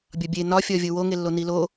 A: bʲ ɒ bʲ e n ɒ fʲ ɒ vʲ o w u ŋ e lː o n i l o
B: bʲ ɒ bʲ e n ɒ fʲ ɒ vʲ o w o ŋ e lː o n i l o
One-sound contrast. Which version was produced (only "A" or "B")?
B